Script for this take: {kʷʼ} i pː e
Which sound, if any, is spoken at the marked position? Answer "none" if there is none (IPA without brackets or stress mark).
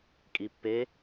kʼ